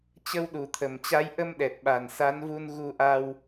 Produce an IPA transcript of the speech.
t͡ɕ ə˧ w ɗ u˨˩ t̪ʰ ə˨˩ m t͡ɕ a˨˦ j ʔ ə˧ m ɗ ɛ˨˩ t̚ ɓ a˨˩ n s a˨˦ n v u˧ n ɣ u˧ ʔ a˧ w

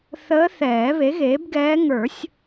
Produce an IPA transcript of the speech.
θ əː˧˥ θ ɛː˨˩˦ β e˩˥ ɣ eː˩˥ b ɡ ɛː˧˥ ŋ ə˞˨˩˦ sʲ

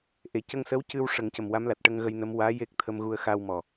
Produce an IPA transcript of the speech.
ʔ e˨˩ c ə˧ ŋ s ə˧˥ w c ɨ˧ w ʂ ə˨˩˦ ŋ c ə˨˩ m w a˧˥ m l a˨˩ t̚ ʈ ə˧ ŋ ɣ ə˧ j n ə˧˥ m w aː˧˥ j e˦˥ k̚ t̪ʰ ə˧ m ɣ u˧ ə̯ x aː˧ w m ɔ˨˩

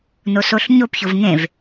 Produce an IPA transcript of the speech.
n o s o ɬ ɲ o p ç o v ŋ ẽ v

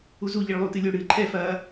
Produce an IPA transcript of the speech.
u z u ʎ i ɭ lˠ uː t ɨ lʲ o ɽ ɨː ǃʰ ɛ f ɐː

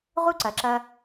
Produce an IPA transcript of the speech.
ʁ u˥ ǀ ɐ˩˧ ǁ ɐ˧

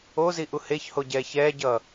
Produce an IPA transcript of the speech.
o z i ʔ u h e ç h o ɟ ɛː ç ɛː ɟ ʌː

